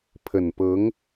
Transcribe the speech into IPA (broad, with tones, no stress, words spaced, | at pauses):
pʰə˨˩npɤ˧˥ŋ